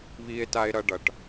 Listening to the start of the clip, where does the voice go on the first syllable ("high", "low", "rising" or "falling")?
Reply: low